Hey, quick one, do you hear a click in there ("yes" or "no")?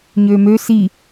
no